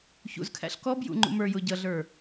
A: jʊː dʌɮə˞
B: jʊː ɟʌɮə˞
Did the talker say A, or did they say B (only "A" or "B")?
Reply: B